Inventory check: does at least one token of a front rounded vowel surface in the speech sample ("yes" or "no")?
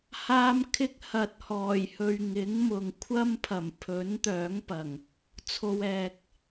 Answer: yes